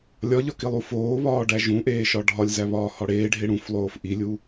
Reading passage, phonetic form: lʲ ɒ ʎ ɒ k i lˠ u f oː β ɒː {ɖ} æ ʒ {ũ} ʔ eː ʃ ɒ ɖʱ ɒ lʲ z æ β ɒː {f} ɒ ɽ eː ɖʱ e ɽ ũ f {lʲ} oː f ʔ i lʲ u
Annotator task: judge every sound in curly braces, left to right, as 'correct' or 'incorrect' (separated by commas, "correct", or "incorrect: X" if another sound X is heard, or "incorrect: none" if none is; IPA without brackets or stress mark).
correct, correct, incorrect: h, incorrect: lˠ